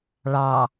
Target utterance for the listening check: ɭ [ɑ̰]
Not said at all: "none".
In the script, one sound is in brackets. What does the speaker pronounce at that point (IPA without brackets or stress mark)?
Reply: ɑ